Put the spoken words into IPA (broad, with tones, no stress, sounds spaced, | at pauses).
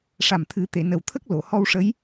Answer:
ʂ a˨˩ m t̪ʰ ɨ˨˩˦ t̪ e˨˩˨ n ə˨˩ w t̪ʰ ə˦˥ k̚ l o˨˩˨ h ɔ˧ w ʂ ə˧˥ j